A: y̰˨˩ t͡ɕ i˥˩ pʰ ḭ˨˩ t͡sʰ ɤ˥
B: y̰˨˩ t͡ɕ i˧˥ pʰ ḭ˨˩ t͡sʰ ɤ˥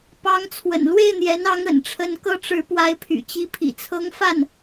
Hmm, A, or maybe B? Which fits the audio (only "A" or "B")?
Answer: B